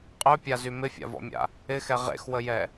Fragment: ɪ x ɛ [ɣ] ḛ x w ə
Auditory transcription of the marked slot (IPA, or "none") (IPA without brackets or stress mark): ʁ